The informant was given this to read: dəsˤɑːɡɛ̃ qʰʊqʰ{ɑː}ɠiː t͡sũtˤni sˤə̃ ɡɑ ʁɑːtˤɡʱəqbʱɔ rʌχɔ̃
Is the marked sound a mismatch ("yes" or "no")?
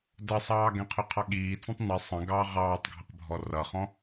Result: yes